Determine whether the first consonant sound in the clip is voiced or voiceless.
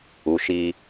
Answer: voiceless